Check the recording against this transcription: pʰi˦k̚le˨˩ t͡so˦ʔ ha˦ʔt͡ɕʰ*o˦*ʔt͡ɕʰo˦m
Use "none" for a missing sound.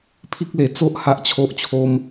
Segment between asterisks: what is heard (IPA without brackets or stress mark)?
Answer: o˦